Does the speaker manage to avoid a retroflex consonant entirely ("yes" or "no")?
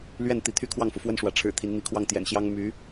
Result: no